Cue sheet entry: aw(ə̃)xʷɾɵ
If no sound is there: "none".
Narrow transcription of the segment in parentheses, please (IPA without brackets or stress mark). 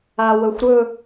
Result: ə